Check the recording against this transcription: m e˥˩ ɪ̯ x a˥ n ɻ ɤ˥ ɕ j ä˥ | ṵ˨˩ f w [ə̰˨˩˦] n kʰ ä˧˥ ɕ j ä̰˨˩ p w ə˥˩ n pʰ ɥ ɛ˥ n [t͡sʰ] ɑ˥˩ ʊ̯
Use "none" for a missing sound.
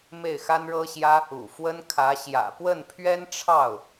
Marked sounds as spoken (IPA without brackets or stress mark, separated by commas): ə˥, ʈ͡ʂʰ